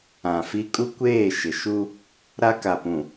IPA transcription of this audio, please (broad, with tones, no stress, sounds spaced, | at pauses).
ã˨ f i˦ kʼ u˦ kʷ eː˦˨ ʃ ɪ˨ ʃ u˦ | ɾ a˦ k a˨ p ũ˨